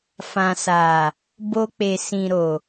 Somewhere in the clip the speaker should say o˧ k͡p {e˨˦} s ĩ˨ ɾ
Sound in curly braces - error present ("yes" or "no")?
yes